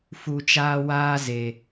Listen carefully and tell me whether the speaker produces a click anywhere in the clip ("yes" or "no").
no